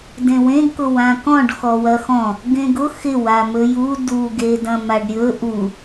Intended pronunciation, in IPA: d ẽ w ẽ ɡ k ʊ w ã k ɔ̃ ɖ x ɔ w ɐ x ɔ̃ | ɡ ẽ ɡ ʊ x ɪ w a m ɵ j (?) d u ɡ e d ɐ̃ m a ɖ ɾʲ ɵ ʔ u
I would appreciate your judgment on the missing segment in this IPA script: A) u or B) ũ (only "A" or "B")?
A